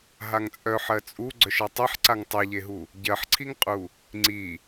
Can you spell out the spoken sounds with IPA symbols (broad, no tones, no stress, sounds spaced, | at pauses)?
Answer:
ɦ a ŋ t͡sʼ œ ħ ɜ t͡sʼ u ɡ͡ǀ œ ʃ ɜ tˤ e ħ ǀ a ŋ tˤ ɛ ʎ e ɦ u | ɟ ɜ ħ ǀʰ i ŋ qʼ u | ŋ͡ǀ i